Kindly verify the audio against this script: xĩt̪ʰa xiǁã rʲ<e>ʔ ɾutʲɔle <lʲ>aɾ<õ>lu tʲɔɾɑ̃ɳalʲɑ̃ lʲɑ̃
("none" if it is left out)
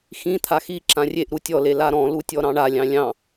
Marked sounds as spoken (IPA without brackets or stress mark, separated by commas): e, l, ɔ̃